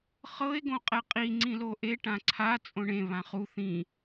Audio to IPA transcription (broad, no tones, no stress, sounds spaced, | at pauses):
χ ɤ e̯ ɡ õ qʼ ɛ qʼ i ŋ͡ǀ ĩ l o ʔ e ʈ ã ǀʰ a t͡sʼ õ ɳ ẽ β ã χ u θ ĩ